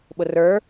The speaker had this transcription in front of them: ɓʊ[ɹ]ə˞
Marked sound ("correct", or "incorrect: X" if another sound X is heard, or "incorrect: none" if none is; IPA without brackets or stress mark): incorrect: r